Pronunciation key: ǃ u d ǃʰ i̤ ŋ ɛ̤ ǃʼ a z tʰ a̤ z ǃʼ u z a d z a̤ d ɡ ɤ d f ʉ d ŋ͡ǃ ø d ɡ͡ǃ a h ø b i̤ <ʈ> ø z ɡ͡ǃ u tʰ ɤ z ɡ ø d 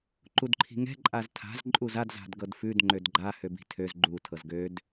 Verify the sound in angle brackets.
incorrect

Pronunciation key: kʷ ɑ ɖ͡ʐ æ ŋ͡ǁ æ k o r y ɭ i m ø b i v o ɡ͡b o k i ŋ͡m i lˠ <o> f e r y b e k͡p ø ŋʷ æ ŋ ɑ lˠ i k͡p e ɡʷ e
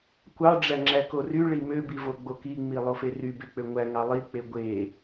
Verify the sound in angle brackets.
correct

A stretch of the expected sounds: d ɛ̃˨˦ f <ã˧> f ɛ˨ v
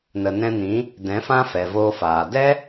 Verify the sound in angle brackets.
incorrect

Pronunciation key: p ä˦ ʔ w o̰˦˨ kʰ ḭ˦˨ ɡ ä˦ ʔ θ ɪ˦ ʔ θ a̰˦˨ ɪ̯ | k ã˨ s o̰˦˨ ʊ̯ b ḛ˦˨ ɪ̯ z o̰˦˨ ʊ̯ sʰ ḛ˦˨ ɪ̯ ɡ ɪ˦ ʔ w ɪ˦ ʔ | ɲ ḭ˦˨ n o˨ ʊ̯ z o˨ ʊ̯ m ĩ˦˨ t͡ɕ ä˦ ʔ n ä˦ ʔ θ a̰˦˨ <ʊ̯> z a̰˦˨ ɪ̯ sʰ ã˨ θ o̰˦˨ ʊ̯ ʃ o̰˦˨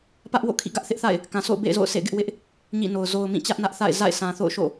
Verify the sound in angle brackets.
incorrect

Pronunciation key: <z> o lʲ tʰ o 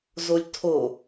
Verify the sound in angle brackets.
correct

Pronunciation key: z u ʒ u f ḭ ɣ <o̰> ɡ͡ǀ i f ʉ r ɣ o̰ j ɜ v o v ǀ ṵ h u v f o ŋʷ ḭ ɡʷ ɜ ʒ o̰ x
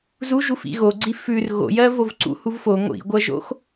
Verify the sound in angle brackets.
incorrect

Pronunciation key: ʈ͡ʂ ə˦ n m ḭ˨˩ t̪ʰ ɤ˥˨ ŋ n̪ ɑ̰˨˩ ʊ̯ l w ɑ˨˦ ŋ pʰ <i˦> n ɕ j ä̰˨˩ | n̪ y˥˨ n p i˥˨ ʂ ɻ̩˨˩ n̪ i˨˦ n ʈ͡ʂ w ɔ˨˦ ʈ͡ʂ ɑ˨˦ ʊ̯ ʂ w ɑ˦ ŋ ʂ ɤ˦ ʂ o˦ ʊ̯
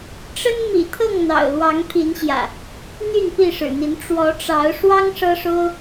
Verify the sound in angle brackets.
incorrect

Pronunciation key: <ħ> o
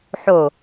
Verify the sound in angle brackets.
correct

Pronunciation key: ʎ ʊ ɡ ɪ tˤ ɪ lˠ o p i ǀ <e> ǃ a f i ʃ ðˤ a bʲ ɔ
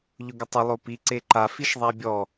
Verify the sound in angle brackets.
correct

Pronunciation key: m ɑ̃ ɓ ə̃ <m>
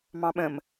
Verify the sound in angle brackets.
correct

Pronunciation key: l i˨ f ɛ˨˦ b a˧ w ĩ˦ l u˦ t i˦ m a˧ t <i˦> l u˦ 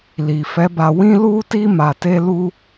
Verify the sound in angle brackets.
incorrect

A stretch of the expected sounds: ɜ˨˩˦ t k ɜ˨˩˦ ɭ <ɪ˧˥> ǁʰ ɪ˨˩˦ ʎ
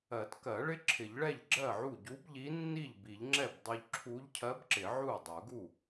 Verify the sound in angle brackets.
correct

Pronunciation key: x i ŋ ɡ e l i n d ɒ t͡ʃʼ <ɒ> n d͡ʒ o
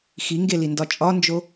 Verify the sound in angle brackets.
correct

